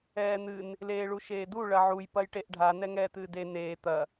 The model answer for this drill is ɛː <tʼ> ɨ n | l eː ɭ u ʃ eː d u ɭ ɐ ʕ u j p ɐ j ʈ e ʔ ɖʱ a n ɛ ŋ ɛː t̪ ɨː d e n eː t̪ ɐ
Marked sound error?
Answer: yes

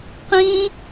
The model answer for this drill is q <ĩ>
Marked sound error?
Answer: no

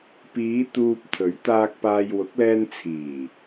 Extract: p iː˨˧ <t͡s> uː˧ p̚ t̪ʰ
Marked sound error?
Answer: yes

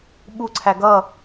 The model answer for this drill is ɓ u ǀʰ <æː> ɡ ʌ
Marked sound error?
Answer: yes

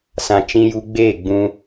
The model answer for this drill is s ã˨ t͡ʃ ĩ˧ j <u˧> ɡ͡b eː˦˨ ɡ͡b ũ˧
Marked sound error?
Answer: no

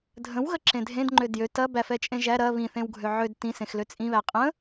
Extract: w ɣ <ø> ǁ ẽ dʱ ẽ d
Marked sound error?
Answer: yes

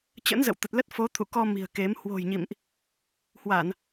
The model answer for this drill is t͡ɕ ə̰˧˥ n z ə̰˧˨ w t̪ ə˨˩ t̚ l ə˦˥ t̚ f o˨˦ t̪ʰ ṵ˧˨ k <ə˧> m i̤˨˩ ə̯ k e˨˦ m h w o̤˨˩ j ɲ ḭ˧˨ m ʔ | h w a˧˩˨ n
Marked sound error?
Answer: yes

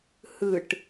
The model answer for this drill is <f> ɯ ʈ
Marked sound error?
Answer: yes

